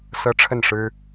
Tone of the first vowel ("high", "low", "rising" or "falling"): high